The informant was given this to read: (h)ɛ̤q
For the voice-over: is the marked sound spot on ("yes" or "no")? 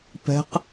no